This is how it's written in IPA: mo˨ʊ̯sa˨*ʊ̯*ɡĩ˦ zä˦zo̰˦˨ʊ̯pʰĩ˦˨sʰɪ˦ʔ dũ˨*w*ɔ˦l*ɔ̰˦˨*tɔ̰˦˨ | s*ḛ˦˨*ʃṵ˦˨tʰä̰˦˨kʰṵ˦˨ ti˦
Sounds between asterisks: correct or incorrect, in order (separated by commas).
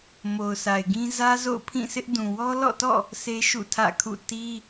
incorrect, correct, correct, incorrect